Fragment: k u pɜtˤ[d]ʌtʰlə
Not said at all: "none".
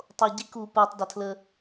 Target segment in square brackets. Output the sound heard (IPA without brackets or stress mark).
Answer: d